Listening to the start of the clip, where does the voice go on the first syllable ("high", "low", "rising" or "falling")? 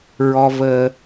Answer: high